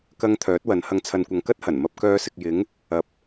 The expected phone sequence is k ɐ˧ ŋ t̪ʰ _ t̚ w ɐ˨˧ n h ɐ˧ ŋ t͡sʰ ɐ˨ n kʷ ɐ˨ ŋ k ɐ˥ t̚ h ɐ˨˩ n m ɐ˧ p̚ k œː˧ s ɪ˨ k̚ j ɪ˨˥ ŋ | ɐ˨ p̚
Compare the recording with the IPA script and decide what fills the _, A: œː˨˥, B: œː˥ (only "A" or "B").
A